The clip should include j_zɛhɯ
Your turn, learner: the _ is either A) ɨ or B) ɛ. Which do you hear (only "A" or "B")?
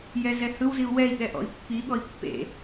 B